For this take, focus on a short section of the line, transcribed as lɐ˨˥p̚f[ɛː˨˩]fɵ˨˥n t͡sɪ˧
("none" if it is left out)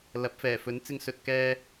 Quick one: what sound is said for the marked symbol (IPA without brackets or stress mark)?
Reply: ɛː˨˩